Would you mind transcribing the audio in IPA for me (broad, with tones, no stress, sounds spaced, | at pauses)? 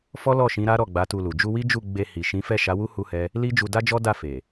f ɔ˦ l ɔ˦˨ ʃ ĩ˨˦ ɾ a˦ ɾ ɔ˦˨ ɡ͡b a˨˦ t u˧ l u˨ d͡ʒ u˧ w i˦ d͡ʒ u˦˨ ɡ͡b e˧ h i˨ ʃ ĩ˨˦ f ɛ˦˨ ʃ a˨˦ w u˦ h u˦ h ɛ˦ | l i˦ d͡ʒ u˧ d a˦ d͡ʒ ɔ˦ d a˦˨ f e˨